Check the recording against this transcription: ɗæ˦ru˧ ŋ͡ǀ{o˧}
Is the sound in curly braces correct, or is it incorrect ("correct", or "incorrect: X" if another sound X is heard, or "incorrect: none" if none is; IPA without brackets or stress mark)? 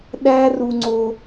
correct